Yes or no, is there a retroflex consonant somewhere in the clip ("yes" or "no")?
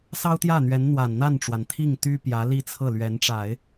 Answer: yes